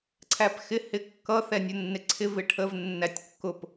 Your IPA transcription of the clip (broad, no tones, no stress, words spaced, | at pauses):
ǀʰæpxɪ hɪkːʌθɛ nʲʊnːɪǀʰɪ vɪʈʰəv nːætʲkːʊp